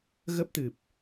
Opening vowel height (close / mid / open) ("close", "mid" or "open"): mid